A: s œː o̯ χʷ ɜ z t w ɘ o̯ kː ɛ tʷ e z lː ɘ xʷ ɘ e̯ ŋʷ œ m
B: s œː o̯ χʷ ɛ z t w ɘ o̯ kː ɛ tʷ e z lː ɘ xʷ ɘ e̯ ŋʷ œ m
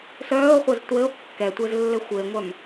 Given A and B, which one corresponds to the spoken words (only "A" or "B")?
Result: A